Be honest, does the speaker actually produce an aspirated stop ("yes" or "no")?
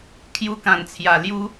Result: yes